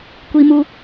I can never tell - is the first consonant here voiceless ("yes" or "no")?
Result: yes